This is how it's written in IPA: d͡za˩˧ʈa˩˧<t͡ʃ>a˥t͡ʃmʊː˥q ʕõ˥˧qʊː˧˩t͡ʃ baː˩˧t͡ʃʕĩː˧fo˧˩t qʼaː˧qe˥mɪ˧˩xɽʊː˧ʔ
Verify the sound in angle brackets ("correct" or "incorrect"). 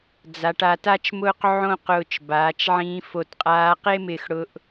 incorrect